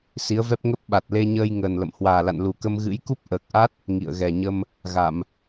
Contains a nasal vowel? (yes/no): no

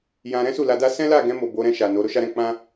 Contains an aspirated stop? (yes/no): no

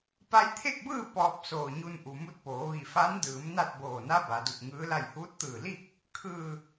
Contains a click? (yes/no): no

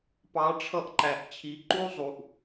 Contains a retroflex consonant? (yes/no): yes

